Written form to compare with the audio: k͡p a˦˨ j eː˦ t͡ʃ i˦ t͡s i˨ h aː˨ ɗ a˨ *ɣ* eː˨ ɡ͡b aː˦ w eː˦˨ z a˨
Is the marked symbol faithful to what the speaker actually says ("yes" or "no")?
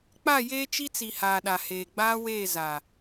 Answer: no